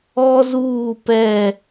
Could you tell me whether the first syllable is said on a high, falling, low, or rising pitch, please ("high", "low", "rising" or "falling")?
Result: high